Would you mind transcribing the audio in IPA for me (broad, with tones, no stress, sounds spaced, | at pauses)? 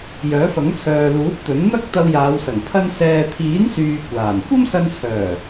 j œː˨˥ f ɐ˨˥ ŋ t͡sʰ œː˨ l uː˨˥ t̚ t̪ ɵ˨˥ n n̪ ɐ˥ k̚ t̪ ɐ˧ w j aː˨˧ w s ɐ˨˩ ŋ pʰ ɐ˧ n s ɛː˨ t̪ʰ iː˨˥ n s yː˨ kʷ aː˨˩ n kʷ ɐ˥ m s ɐ˧ n t͡sʰ œː˨˩